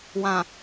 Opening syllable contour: low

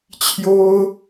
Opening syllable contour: high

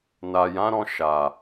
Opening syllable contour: low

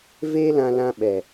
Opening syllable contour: high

